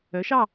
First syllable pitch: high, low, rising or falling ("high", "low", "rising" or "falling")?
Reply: rising